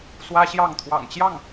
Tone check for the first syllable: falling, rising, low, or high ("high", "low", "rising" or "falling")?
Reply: high